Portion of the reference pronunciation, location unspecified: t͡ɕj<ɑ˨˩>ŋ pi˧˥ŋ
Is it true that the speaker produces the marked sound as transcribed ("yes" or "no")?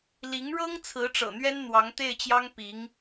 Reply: no